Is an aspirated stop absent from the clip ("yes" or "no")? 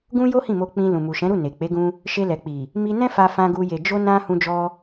yes